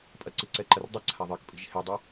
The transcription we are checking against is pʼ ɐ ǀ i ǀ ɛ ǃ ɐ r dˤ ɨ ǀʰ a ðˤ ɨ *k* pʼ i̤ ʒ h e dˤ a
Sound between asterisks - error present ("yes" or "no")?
no